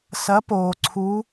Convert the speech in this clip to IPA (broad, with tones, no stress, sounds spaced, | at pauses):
s ɐ˨˥ p oː˩ ǀʰ uː˨˥